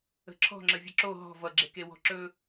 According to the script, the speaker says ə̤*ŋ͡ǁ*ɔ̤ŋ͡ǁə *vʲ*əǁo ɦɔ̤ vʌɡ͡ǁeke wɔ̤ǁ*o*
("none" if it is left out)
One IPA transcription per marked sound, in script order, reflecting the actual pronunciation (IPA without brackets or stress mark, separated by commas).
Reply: ǁʰ, vʲ, ɵ